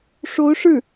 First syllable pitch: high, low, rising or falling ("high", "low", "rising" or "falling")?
rising